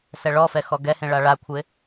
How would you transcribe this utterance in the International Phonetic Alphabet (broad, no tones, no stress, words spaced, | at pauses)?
sɛɭɔfɛ xɔɡɛhẽ ɭaɭakʷʰɪ